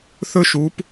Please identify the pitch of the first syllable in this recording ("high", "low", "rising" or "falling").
high